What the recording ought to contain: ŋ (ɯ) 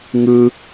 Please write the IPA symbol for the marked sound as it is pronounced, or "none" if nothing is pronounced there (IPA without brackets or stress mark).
ɯ